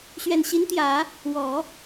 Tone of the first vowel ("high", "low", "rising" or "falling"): low